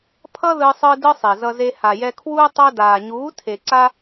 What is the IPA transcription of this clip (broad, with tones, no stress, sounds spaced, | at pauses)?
pʰ ʌ˦ ð ɯ˧ sˤ ɯ˧ d ɯ˦ sˤ e˨ z ʌ˧ z e˧ h a˨ j ɛ˧ kʰ w uː˦ tˤ o˧ d aː˨ ɲ uː˨˦ tʰ e˨ ǀ a˦